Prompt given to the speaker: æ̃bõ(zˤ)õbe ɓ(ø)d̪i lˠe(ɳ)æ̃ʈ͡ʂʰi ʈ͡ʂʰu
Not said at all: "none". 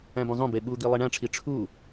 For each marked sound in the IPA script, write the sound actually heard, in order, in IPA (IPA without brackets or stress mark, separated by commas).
zˤ, u, ɳ